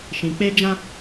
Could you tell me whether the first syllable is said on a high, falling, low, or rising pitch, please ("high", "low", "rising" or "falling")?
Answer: low